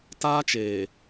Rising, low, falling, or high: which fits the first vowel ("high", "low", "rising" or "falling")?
high